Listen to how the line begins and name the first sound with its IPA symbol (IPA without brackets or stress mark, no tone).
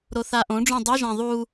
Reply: ɾ